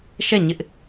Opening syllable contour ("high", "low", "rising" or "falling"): falling